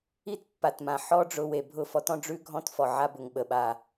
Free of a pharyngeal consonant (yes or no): no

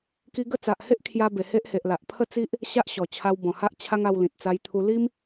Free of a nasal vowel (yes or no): no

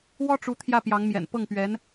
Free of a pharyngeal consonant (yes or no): yes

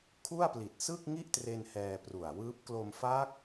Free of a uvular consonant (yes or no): yes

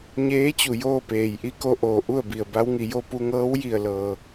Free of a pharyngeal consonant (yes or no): yes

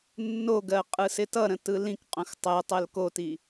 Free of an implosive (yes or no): yes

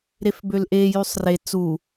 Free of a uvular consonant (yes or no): yes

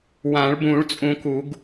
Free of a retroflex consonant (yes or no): no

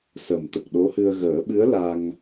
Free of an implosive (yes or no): no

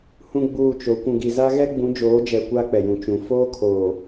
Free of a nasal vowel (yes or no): no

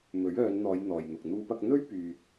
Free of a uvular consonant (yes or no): yes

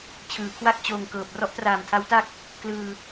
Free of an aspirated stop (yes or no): no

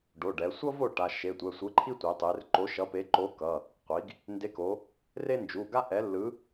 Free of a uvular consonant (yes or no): no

